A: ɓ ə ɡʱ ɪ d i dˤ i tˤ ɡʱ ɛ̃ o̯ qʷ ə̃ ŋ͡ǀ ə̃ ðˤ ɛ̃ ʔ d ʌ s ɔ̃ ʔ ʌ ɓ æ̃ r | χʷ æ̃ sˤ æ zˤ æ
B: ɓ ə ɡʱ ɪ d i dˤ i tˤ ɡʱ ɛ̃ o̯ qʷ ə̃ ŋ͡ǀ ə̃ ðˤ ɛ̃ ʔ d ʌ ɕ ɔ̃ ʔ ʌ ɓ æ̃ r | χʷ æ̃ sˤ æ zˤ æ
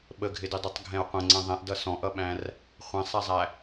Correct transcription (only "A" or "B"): A